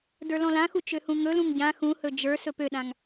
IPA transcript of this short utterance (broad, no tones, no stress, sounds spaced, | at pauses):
d ə˞ l ɔ̃ l ã x u t͡ʃ ø h ũ ŋ ɵ l ũ ŋ ɟ ã x ũ h ɵ d͡ʒ ə˞ s ɵ p ø ɗ ã ŋ